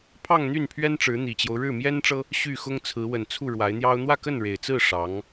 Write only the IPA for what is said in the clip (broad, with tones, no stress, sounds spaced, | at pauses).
pʰ ɑ˥˧ ŋ n̪ y˥˩ n pʰ ɥ ɛ˥ n ʈ͡ʂ ɻ̩˧˥ n̪ i˨˩ t͡ɕ j o˦ ʊ̯ ɻ ɻ̩˥˩ m j ɛ˥ n ʈ͡ʂ ɤ˥ | ɕ y˥˩ x ʊ˥ ŋ t͡sʰ ɹ̩˧˥ w ə˨˩ n t͡sʰ u˥˩ ɻ w a˧˥ ɪ̯ n̪ j ɑ˥ ʊ̯ n̪ w ä˥˧ k ə˥˩ n ɻ e˨˩ ɪ̯ t͡s ɹ̩˥˩ ʂ ɑ˧˥ ŋ